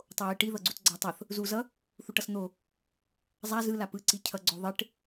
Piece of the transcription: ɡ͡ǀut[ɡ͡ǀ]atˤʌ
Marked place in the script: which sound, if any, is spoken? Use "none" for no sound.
ɡ͡ǀ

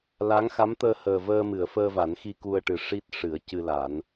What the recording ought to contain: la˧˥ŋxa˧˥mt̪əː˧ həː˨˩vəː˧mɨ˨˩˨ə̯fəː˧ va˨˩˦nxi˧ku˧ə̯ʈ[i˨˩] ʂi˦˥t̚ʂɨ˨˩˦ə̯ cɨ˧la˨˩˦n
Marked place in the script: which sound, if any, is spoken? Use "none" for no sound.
ɨ˨˩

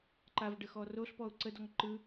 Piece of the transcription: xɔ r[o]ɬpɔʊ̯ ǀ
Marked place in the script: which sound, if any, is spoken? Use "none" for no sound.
o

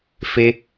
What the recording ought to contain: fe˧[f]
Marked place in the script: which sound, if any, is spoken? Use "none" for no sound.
none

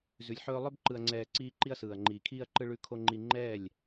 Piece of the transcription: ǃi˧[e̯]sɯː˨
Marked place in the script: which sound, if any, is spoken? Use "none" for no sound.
ɐ̯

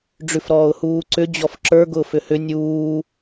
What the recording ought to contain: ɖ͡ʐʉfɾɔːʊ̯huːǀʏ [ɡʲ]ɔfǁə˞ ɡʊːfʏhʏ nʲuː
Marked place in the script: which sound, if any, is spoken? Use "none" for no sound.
d͡ʑ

